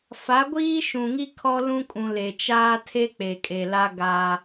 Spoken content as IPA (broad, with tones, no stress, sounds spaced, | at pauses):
f a˨˦ ɡʷ iː˦ ʃ ũ˨ ŋ i˦ kʰ ɔ˦ l ũ˦ kʼ ũ˨ l e˨ t͡ʃ aː˦ tʰ e˦ k͡p e˨ kʼ e˨ l a˦ ɡ a˦